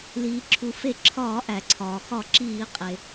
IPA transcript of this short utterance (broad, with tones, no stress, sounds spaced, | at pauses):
l iː˩ ǁʰ u˩ f e˧˩ ǁʰ ɒː˧˩˧ ʔ æ˩ ǀʰ ɒː˩ x ɒ˧˩˧ ǁ iː˧˩˧ qʼ e˩